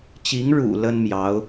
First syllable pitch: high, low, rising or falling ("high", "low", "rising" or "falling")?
rising